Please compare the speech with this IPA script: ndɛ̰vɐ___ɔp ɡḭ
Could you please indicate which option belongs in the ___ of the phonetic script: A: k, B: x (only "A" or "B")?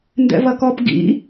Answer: A